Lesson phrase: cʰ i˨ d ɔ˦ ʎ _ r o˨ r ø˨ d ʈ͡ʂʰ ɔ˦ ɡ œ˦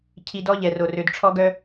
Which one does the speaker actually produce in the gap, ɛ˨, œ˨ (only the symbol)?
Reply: ɛ˨